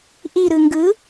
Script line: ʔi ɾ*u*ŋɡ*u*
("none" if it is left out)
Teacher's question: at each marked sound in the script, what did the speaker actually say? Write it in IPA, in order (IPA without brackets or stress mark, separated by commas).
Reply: ɯ, ɯ